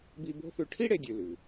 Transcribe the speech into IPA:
b i˦ b o̤˥ θ ʉ˦ ʈʰ i˥ ɽ e˨ dʲ ʉ˨ l ʉ˩

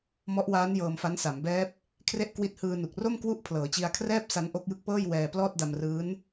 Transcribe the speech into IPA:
m ɔ˦˥ ʔ w aː˦˥ n j ɤː˧ m f a˦˥ n s a˩˦ m b ɛː˦˥ p̚ | kʰ r e˦˥ ʔ k w i˦˥ t̚ h ɯː˧ n u˨˩ k̚ r o˥˩ m k w u˥˩ ʔ pʰ l ɤː˩˦ t͡ɕ i˧ a̯ kʰ r ɛː˥˩ p̚ s a˦˥ n ʔ o˦˥ k̚ j ɯ˦˥ k̚ p ɤː˥˩ j w ɛː˧ p l ɔː˥˩ t̚ d a˧ m r ɯː˦˥ n

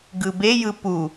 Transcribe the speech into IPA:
ɡ ɯ b e j ɯ p u

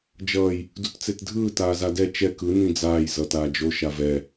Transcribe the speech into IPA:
d͡ʒ ʌː j | d u t t͡s e t dʱ ɯː t aː z a d ɛ t͡ʃ ɛ k ɯ n ĩ d͡z aː j z ʌː t aː d͡ʒ o ʃ a v ɛ

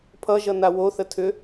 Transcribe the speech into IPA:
pʰ ʌ ʒ ʌ n a w o θ ə tʰ ʏ

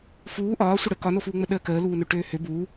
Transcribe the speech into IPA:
f uː ʔ ɒː sʷ ə ɽ ə k ɒ n o f uː ŋ͡m ə ɗ əː k əː l uː n ø ʈ øː h ø b uː

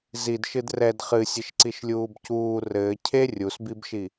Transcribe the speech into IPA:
z i d ʃ ɨ d r ɛ d χ ɨ sʲ ɘ ʃ ǀ i ʃ lʲ uː b c uː r ɘː cʰ e rʲ u s b i b ʃ i

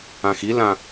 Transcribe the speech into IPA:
ã x i l ã

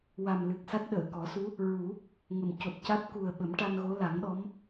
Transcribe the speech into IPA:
w a˨˩ m l ɨ˨˩ k̚ s a˦˥ t̚ ɗ əː˨˩˨ k ɔ˨˩˦ s u˧˥ | ɹ u˨˩˦ | ŋ ə˨˩ m c o˨˩ t̚ c a˦˥ t̚ k u˨˩ ə̯ ɓ ə˨˩˦ m ʈ a˧ n ɣ o˧˥ l a˨˩˦ ŋ ɗ ɔ˧˥ m

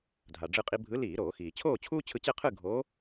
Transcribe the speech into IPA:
dʱ a˩ ɖ͡ʐ ɯ˧ qʼ i˧ bʱ ɯ˨˥ l iː˧˩˧ ɾ oː˧˩˧ x iː˩ t͡ɕʰ oː˥˨ t͡ɕʰ uː˥ t͡ɕʰ ɯ˧ t͡ɕ ɛ˥˨ qʰ ɯ˥˨ ɡʱ o˨˥

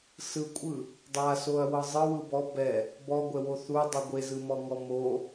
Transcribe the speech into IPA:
s ɯ kʷʼ ɯ | dˤ a s o ɐ̯ w ɤ zˤ ɯ w ɯ b ɔ b ɛ | b ɔ ɡʷ ɛ w o θ u dˤ ɯ ɡʷ e z ɯ m ɔ ŋ ɔ m o

